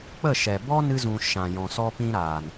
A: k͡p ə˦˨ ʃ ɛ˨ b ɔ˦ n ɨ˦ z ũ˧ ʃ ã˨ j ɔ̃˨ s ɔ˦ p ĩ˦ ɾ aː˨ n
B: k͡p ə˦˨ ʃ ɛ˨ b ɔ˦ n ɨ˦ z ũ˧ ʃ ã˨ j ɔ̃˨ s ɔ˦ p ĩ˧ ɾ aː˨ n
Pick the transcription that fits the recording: A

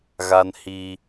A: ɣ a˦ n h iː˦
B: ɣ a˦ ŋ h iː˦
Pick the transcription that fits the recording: A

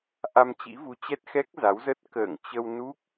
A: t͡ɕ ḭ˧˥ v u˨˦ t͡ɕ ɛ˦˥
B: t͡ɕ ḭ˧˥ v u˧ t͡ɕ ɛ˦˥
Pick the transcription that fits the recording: A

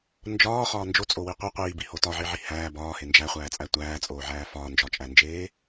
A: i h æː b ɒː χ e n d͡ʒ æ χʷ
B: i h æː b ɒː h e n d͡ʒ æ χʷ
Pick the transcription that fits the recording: B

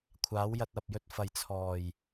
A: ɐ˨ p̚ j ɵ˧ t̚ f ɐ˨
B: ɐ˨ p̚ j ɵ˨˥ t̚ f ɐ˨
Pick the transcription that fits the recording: A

